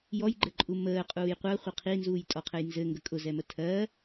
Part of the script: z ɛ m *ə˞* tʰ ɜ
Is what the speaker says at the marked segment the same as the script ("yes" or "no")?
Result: no